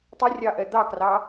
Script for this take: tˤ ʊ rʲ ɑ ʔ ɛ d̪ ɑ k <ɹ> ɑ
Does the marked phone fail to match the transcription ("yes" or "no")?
yes